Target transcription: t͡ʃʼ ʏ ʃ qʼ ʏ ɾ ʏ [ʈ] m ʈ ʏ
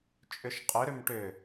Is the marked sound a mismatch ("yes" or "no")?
yes